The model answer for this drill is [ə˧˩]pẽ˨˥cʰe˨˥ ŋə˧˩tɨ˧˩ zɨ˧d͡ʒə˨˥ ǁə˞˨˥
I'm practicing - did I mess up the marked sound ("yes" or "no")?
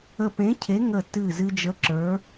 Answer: no